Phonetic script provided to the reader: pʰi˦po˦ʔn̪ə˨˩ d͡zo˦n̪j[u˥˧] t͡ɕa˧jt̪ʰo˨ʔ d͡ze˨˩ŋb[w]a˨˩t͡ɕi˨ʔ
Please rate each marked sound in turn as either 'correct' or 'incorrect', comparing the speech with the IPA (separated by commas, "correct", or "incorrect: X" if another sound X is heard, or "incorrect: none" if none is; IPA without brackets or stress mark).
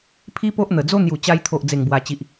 incorrect: u˨˩, correct